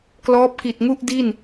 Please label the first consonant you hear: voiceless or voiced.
voiceless